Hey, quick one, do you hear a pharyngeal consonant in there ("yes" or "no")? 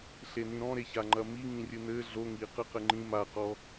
no